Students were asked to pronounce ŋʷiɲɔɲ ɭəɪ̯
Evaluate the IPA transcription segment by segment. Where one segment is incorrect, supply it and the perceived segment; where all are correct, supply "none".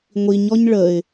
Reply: none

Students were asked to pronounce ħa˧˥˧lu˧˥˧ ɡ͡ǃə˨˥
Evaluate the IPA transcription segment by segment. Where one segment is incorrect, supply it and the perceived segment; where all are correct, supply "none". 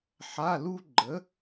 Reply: u˧˥˧ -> u˥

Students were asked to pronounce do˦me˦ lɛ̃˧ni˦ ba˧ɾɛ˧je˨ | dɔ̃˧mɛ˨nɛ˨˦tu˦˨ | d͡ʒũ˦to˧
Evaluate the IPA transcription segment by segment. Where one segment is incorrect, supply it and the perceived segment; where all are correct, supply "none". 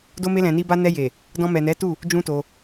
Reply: ɾ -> n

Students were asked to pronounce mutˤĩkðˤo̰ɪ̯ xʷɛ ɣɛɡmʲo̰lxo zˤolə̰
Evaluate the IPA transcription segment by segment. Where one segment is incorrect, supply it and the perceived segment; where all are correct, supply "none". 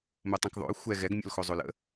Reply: none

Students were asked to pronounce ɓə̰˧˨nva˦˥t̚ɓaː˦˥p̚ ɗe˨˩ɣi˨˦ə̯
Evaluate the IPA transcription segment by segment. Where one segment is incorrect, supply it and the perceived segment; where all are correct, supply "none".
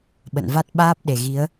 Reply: none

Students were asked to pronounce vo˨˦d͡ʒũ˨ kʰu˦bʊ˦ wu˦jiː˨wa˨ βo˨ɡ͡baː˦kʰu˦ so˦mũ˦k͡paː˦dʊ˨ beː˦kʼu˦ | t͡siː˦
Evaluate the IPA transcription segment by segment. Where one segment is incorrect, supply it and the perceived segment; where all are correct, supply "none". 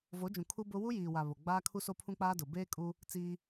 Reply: m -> pʰ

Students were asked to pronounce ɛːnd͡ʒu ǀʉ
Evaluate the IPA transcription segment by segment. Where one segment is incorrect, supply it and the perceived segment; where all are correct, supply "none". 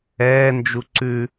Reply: none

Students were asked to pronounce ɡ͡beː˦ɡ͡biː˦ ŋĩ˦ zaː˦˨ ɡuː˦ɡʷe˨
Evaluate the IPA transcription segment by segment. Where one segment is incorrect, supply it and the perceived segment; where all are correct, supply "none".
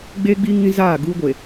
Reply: none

